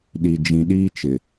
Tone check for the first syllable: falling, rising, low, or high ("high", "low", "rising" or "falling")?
low